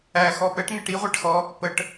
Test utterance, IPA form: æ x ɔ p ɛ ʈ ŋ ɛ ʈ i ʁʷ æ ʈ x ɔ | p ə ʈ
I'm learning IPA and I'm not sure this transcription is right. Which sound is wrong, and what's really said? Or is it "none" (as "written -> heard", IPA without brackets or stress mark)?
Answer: none